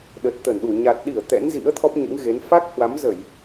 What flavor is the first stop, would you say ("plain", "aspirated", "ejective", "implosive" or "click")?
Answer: implosive